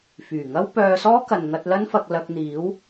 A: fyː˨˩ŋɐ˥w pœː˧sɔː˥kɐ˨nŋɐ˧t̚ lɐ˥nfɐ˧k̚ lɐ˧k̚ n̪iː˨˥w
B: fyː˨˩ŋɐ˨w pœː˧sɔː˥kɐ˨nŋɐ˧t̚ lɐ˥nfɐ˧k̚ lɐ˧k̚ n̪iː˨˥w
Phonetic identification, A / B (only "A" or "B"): A